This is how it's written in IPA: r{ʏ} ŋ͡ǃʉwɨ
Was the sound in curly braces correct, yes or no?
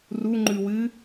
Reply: no